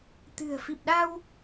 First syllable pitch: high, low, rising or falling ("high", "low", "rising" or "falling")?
low